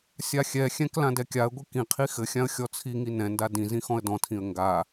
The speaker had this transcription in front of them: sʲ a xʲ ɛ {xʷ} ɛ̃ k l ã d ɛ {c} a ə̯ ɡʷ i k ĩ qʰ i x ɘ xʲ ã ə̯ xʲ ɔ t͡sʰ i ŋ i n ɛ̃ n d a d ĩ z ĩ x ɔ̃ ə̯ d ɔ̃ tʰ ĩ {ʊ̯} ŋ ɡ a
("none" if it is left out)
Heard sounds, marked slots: xʲ, kʲ, ə̯

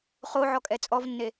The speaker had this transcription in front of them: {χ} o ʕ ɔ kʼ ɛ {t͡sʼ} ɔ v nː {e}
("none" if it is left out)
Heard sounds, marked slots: χ, t͡sʼ, e

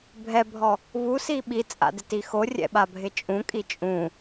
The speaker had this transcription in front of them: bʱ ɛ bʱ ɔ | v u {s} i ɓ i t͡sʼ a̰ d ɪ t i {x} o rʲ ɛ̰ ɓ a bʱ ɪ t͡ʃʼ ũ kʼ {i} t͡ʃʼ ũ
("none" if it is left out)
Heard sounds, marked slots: s, x, i

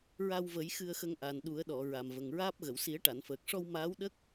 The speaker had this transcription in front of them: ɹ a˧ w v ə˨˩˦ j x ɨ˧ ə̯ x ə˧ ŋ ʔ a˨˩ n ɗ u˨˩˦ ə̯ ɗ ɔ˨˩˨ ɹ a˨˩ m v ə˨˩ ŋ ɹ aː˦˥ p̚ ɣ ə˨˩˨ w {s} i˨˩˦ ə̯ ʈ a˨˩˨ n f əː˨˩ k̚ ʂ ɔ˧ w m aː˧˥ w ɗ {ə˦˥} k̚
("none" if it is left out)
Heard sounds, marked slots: s, ə˦˥

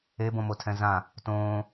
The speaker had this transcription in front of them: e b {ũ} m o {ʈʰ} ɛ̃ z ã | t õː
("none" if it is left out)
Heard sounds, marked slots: õ, tʰ

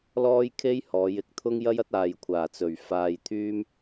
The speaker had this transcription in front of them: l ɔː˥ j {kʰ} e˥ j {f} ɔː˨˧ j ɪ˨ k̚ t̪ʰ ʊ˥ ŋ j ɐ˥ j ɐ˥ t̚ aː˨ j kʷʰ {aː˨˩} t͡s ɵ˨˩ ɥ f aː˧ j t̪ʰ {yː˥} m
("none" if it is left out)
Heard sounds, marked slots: kʰ, h, aː˨˩, yː˥

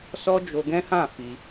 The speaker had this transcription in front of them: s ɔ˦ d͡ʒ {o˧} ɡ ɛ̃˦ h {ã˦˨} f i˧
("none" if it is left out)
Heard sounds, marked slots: o˧, ã˦˨

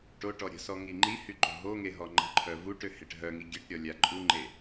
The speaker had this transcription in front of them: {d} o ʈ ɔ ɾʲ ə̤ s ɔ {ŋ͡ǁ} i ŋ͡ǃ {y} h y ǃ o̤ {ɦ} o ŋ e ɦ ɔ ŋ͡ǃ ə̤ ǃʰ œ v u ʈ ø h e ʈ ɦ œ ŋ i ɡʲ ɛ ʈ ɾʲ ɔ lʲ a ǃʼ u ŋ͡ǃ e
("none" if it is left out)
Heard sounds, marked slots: ʈ, ŋ, i, ɦ

